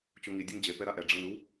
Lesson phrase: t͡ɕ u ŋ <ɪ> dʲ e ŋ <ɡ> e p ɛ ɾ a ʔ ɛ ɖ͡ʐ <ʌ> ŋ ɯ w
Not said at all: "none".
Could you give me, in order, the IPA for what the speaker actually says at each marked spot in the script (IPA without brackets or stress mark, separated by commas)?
i, d͡ʑ, ʌ